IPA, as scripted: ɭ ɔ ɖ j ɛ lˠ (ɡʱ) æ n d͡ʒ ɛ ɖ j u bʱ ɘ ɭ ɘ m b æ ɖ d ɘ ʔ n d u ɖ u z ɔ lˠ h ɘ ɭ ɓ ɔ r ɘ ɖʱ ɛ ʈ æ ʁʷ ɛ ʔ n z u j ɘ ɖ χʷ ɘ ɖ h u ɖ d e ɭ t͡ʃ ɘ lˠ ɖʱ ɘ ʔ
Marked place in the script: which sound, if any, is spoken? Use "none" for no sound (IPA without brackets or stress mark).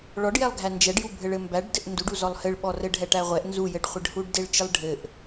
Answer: ɡʱ